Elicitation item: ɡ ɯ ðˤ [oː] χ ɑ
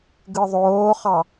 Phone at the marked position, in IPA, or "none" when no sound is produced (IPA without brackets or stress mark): oː